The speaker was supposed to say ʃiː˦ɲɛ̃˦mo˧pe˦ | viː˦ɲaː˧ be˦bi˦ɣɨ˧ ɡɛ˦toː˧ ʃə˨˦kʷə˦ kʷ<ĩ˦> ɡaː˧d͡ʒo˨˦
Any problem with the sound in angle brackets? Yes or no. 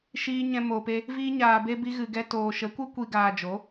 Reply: yes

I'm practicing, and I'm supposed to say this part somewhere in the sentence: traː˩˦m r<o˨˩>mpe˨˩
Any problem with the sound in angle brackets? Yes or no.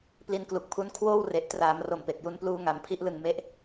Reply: no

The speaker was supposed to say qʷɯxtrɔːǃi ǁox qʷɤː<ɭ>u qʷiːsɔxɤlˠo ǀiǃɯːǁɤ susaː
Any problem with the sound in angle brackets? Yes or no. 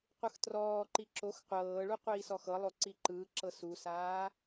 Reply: no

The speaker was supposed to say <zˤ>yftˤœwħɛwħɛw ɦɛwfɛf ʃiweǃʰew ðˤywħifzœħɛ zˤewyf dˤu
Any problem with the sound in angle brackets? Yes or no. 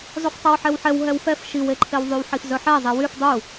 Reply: no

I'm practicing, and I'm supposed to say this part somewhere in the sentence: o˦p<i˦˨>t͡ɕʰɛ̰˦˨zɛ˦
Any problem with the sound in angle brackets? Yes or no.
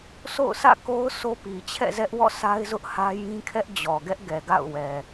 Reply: yes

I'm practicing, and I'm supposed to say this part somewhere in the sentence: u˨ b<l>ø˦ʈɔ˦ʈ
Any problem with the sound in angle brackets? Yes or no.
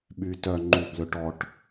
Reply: no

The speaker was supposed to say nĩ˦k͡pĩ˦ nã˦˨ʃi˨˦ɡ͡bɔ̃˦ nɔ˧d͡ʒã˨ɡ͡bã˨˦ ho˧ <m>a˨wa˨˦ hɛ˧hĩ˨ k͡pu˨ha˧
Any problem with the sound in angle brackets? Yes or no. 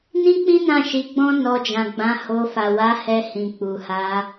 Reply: yes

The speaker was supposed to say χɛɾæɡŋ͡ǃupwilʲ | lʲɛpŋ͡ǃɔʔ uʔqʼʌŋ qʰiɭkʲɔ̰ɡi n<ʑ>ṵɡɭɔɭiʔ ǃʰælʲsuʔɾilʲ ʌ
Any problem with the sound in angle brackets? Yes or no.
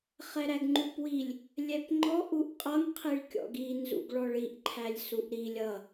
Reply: yes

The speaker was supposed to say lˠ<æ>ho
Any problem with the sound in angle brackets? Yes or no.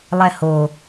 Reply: yes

